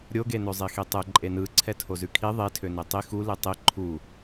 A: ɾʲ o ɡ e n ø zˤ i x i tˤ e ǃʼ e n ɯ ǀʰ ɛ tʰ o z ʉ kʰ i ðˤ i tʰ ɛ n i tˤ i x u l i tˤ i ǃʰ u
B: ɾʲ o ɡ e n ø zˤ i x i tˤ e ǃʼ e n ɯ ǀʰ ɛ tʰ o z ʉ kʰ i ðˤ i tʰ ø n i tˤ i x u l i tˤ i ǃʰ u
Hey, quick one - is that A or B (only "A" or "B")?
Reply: B